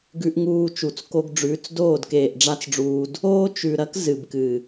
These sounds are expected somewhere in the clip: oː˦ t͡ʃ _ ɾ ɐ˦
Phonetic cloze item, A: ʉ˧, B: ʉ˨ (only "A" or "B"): B